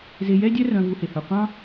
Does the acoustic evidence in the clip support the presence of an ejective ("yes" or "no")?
no